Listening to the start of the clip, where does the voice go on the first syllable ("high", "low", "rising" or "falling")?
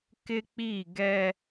high